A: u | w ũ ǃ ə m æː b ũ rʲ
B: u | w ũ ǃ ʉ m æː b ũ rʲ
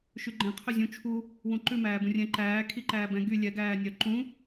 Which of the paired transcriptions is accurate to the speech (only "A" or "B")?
B